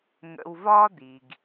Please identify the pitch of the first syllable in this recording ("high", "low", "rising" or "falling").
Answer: low